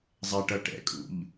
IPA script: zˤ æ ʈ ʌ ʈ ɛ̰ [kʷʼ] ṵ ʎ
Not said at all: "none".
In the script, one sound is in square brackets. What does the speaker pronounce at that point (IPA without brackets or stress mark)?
kʼ